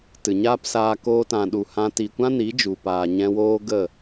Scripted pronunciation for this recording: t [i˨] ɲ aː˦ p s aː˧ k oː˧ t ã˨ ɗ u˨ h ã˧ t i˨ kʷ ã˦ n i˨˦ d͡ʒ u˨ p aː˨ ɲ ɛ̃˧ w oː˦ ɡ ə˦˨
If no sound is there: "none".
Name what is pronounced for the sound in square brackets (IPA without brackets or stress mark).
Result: ɨ˨